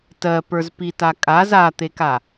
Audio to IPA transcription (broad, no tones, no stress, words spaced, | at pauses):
tɜpə˞zpita kʼaz at̪eka